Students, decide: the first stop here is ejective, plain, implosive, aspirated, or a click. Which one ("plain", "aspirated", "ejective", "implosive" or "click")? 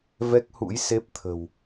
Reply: plain